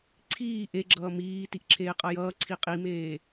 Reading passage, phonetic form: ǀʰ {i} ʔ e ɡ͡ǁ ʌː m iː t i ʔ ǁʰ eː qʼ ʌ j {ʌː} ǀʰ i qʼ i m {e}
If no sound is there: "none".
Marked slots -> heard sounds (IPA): iː, ʌː, eː

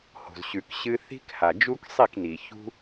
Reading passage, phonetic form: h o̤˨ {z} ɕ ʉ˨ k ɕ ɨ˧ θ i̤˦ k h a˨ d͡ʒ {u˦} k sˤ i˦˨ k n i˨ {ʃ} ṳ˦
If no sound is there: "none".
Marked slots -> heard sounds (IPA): z, u˦, ç

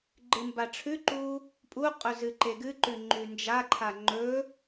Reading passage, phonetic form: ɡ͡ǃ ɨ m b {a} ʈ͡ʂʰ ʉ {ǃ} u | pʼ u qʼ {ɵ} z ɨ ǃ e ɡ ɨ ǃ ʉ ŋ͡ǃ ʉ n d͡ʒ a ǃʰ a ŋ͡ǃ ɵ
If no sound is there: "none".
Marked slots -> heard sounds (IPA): a, ǃ, ɵ

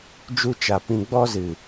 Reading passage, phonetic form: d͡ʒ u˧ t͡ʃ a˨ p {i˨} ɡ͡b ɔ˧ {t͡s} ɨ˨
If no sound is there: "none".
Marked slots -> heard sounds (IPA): ĩ˨, z

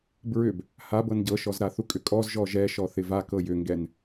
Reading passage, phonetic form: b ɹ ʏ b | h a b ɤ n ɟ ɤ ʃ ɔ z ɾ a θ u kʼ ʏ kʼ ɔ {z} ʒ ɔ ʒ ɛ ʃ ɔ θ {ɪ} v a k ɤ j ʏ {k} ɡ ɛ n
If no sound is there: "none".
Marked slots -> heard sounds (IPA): z, ɪ, ŋ

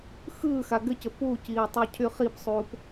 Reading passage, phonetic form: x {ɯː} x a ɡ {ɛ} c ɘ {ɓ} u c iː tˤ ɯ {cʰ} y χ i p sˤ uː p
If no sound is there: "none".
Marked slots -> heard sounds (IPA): ɯː, ɘ, p, cʰ

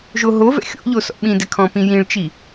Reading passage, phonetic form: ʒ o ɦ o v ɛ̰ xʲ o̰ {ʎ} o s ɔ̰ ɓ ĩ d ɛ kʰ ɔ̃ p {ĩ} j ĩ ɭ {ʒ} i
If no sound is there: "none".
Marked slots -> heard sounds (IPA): ʎ, ĩ, t͡ʃ

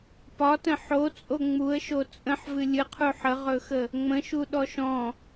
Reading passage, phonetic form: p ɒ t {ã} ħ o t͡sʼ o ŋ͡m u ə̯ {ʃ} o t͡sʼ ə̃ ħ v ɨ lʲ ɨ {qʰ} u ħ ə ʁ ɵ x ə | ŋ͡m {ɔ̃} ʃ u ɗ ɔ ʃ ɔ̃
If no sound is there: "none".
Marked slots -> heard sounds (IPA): ə̃, ʃ, qʰ, ə̃

